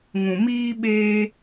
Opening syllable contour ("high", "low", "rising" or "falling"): low